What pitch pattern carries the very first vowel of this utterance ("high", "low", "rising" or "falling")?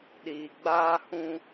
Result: low